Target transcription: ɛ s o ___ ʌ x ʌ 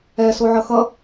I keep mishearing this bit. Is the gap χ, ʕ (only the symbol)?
ʕ